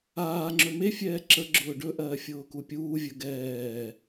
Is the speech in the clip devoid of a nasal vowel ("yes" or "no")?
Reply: yes